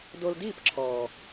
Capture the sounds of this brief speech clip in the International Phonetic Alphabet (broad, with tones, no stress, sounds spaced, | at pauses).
d o˧ l d iː˦˨ p ǁʰ ɔː˨